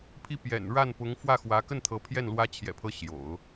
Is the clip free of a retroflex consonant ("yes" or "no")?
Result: no